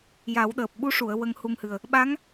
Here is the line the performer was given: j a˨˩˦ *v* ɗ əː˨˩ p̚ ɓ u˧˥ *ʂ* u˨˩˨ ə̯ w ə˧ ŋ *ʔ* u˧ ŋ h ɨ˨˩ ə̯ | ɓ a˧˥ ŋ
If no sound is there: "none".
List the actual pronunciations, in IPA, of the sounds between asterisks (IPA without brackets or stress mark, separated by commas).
w, ʂ, h